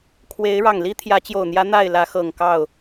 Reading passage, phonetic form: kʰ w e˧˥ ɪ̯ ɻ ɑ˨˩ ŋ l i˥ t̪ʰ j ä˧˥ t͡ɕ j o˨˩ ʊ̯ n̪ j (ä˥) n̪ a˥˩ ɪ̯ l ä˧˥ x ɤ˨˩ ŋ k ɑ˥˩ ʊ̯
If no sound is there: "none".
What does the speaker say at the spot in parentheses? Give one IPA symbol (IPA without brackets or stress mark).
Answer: ä˧˥